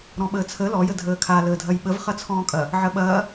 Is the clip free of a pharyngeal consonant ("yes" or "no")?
no